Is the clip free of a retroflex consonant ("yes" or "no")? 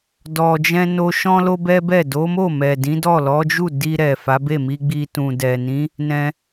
yes